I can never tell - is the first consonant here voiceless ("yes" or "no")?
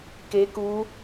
yes